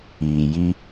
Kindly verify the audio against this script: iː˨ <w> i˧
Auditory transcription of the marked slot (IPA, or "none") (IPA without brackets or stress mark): j